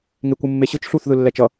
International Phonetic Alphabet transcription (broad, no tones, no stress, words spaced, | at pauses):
ŋekʷɯmːeɕɯt͡ʃ ɬuθ ðɯlːɛt͡ʃʌ